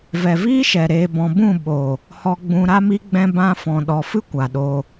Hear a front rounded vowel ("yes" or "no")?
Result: no